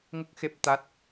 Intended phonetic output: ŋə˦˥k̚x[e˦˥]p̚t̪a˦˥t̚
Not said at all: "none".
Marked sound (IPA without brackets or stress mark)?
e˦˥